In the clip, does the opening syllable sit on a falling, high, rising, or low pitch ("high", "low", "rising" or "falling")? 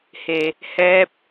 low